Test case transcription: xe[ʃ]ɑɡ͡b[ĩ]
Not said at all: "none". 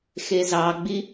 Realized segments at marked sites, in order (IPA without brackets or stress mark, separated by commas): z, i